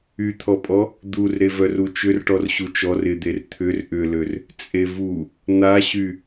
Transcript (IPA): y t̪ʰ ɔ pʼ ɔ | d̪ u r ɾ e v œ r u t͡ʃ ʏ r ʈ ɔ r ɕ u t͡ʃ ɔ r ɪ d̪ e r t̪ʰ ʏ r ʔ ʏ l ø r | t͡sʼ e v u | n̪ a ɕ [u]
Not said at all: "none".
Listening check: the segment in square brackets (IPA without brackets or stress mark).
y